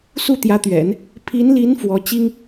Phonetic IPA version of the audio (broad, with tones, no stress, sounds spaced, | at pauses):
s u˥˩ t̪ j ä˧˥ t̪ ɥ ɛ̰˨˩˦ n | pʰ i˧˥ n l i˧˥ n f w ɔ˧˥ t͡ɕ i˥ ŋ